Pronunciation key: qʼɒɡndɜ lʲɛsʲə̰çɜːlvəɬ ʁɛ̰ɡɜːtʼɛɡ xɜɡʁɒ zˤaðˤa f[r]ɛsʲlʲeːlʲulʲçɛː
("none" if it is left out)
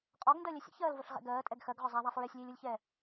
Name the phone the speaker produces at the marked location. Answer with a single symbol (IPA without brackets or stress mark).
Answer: ɹ